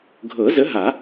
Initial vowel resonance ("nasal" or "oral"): oral